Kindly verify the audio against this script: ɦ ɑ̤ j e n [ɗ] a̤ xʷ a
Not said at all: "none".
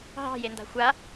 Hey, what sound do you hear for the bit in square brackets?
d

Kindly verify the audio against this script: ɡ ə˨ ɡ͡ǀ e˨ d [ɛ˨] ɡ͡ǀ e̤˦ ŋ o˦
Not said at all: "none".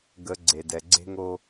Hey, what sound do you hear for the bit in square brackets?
ɛ˨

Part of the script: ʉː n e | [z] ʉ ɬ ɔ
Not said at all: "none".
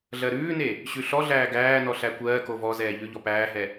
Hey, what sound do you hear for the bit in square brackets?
ɕ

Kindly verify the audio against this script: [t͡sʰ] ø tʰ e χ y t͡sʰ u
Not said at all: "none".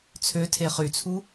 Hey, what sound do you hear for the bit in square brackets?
t͡sʰ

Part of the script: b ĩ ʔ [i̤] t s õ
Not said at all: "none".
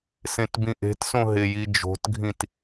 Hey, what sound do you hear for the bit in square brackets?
e̤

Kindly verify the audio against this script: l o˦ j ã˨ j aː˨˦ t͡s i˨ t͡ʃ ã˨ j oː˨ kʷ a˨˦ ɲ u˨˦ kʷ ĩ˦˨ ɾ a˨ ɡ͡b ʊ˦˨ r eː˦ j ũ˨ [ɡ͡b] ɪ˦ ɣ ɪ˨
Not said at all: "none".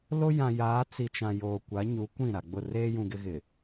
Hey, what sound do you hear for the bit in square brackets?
ɡ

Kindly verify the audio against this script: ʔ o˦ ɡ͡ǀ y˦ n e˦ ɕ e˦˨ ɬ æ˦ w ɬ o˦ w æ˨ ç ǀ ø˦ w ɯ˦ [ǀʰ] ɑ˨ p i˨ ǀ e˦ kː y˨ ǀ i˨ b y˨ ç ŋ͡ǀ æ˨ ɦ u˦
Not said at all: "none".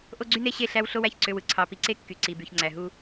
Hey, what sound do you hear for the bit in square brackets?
ǀʰ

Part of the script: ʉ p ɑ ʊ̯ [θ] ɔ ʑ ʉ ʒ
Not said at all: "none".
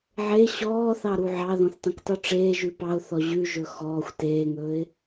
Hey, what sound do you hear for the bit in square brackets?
θ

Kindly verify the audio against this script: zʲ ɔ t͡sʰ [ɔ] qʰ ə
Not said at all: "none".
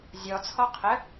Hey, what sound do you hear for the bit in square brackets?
ɔ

